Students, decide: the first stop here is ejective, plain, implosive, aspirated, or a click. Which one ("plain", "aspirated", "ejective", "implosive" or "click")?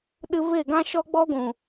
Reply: implosive